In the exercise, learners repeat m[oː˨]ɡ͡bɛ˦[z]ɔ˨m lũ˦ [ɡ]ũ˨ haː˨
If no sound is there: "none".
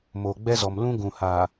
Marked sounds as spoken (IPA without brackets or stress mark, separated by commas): oː˨, z, ɡ